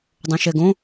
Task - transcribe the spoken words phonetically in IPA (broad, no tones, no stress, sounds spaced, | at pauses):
dˤ õ ʃ ɛ ɡ õ